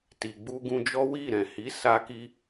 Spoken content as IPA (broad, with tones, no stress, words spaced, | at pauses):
ti˨ɡ͡bu˧ɡũ˧d͡ʒɔ˦ wi˦˨ɾɛ̃˨hi˨˦ sa˧ki˧